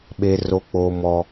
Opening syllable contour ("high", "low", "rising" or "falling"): high